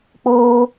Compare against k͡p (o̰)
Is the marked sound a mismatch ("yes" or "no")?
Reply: yes